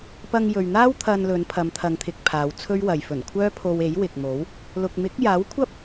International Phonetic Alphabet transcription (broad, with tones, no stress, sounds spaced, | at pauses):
p ɐ˧ ŋ j ɵ˨ ɥ n̪ aː˥ w t̪ʰ ɐ˧ n l ɵ˨˧ n pʰ ɐ˨˧ m t̪ʰ ɐ˨˧ ŋ t̪ʰ ɪ˨ k̚ pʰ aː˨˧ w t͡sʰ ɵ˥ ɥ w ɐ˨ j f ɵ˨˩ n kʷʰ œː˥ pʰ o˧ w e˨˥ j w ɪ˨ k̚ m o˨˥ w | l ʊ˨ k̚ m ɪ˨˥ k̚ j aː˨˥ w kʷʰ ɐ˥ p̚